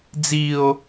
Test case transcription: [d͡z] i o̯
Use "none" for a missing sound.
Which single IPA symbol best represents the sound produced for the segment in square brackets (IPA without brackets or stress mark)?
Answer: d͡z